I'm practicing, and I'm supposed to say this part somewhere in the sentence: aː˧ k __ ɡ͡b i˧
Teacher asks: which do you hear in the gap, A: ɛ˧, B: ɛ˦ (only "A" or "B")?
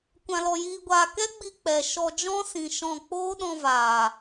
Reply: B